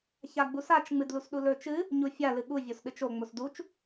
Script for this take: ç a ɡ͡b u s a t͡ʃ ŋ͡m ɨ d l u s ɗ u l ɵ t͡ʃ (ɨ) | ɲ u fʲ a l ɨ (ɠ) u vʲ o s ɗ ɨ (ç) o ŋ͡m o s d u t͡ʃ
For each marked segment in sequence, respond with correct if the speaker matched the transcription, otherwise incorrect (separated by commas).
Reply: correct, correct, incorrect